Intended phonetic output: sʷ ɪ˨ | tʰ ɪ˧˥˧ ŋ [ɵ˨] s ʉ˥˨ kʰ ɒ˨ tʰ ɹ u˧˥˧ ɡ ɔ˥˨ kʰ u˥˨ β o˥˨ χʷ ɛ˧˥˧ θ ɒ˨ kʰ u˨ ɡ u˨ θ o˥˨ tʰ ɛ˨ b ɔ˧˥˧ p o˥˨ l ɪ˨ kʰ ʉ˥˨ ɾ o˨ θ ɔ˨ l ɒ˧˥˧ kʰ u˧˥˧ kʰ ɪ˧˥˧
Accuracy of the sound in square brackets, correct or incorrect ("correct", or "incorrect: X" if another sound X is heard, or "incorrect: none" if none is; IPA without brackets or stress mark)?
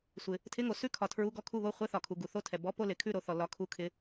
incorrect: o˨